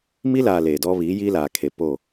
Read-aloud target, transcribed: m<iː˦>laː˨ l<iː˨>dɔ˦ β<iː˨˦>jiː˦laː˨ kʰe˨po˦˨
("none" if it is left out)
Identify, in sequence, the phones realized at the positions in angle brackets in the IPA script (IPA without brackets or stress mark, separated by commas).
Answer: i˦, eː˨, iː˨˦